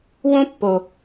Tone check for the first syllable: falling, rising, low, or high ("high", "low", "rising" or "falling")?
high